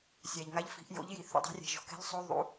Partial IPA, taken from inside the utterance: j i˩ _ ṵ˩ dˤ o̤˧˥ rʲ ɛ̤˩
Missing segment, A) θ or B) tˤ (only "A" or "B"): A